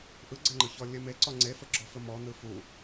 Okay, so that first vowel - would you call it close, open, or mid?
close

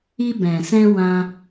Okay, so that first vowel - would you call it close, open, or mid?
close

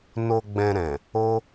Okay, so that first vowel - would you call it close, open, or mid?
mid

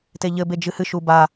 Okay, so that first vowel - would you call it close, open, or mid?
mid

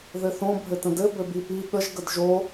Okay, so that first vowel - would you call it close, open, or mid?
mid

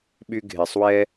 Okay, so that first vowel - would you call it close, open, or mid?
close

